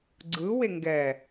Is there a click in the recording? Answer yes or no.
yes